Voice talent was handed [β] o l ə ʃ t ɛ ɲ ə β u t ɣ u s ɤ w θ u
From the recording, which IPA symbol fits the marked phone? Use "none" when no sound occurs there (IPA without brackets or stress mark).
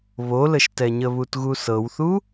β